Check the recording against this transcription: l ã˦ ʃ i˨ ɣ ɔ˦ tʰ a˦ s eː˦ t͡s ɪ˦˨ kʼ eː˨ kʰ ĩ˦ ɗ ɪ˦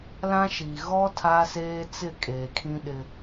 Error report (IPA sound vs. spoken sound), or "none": none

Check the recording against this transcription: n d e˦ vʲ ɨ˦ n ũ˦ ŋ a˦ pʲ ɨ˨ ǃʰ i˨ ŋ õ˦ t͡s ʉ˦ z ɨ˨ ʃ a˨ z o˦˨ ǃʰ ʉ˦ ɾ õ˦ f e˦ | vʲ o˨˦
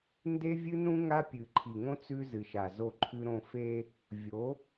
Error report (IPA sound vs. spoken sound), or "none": none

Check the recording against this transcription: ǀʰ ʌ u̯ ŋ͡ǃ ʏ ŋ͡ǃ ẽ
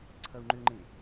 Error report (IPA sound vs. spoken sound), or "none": none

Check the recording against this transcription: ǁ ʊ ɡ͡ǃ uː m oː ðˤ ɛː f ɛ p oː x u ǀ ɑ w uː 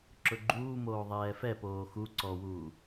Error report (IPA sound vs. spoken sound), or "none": ɑ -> ɔ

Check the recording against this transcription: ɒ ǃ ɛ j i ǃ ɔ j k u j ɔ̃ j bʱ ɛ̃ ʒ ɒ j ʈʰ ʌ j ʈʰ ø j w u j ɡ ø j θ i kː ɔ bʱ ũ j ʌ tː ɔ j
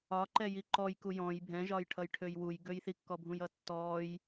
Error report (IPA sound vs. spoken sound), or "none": none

